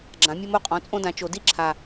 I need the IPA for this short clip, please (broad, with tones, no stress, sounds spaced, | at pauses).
ɡ͡ǁ ã˩˥ mʲ ɘ˦ m o˥˩ qʼ ɔ̃˩˥ t͡sʼ õ˦ d ã˩˥ t͡ʃ o˨˩˦ d i˥˩ ǁʰ a˨˩